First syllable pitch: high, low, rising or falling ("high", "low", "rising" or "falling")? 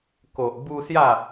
low